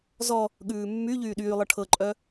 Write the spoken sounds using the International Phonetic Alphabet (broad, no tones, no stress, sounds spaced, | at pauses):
z ɔ | ɠ ʉː mː y ʎ yː ɗ yː lˠ ɤ ʈʰ ɤ ǃʼ œ